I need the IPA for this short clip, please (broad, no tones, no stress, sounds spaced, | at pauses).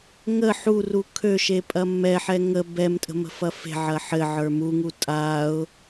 ŋ ə ħ u r u kʰ ø ʃ e pʼ ɐ mː ɛ ħ ɛ ŋ ə b ɛ m tʼ ə̤ m ə̤ f ɐ f e̤ ʕ ɐ ħ ɘ ʕ ə˞ m u ŋ u tʼ a ʊ̯